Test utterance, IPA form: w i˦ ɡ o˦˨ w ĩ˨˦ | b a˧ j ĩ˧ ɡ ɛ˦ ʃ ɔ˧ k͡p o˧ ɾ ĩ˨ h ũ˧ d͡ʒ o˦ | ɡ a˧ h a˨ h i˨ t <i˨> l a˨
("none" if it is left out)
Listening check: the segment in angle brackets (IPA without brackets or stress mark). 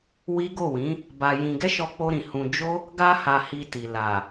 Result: i˨